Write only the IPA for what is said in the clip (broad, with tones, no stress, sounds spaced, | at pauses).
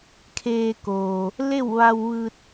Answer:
kʰ eː˧ k oː˩ | l e˥˨ w ʋ a˧ w ʋ ɯː˧ t̚